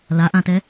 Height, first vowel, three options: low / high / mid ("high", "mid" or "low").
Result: low